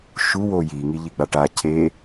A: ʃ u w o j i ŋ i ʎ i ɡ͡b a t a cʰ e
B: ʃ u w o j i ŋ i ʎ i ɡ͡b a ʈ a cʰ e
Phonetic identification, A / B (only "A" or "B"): B